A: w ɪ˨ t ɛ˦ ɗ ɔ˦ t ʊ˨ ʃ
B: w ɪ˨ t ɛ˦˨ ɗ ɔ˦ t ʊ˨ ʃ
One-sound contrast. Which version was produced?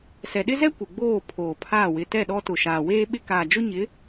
B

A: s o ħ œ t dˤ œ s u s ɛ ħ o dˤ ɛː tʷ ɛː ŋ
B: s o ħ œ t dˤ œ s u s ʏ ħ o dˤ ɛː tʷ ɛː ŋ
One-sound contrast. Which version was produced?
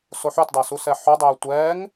A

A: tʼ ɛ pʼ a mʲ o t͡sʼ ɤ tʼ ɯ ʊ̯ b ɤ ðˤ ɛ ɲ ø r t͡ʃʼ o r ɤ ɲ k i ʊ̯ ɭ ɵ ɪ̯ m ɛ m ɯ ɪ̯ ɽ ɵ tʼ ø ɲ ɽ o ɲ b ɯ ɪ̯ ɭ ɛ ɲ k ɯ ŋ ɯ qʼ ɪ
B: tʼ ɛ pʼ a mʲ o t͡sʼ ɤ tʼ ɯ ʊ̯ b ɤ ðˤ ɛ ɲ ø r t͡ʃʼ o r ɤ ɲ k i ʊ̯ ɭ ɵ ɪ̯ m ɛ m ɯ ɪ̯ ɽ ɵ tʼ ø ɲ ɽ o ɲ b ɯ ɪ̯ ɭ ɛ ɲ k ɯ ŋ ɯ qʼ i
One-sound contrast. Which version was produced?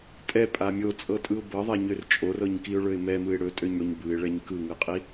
B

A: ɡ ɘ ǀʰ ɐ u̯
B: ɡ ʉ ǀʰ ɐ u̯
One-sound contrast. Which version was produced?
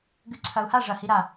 B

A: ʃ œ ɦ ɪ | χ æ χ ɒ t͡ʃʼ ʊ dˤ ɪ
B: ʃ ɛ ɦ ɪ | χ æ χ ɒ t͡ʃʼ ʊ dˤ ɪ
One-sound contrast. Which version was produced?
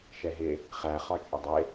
B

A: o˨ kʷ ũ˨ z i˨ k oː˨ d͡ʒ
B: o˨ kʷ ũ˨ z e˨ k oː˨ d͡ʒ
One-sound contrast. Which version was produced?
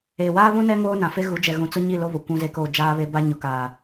B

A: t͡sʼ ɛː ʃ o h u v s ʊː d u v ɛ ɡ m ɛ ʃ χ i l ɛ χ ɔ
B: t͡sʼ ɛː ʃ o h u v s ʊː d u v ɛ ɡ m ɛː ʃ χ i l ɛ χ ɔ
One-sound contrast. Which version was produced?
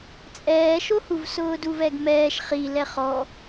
B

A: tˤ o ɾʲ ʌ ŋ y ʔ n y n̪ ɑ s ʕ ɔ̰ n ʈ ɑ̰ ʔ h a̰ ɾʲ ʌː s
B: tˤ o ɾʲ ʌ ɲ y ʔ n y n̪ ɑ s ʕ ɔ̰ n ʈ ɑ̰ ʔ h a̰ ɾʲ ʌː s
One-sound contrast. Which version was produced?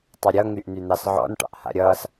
A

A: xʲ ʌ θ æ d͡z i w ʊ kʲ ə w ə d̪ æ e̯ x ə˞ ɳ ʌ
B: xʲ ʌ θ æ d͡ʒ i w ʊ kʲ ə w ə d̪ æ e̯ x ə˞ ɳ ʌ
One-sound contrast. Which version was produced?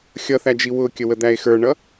B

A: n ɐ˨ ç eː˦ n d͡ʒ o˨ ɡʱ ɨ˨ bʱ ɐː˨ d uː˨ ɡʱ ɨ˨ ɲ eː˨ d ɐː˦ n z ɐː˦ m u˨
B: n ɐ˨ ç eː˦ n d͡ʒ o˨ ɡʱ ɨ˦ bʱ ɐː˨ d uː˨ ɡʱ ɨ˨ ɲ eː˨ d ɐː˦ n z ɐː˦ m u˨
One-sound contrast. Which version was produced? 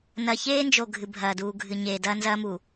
A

